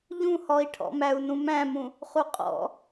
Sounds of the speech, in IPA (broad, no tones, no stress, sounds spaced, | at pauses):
ʎ ũ h ɔ i̯ ʈʰ ɔ̰ m æ u̯ n ũ m æ̃ m ũ | χ u qʼ ɔ̰